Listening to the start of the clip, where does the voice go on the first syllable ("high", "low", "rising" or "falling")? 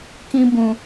high